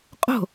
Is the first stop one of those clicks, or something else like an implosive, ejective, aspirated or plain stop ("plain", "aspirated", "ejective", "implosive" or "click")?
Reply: ejective